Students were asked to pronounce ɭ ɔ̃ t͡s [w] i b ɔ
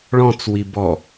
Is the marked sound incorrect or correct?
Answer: correct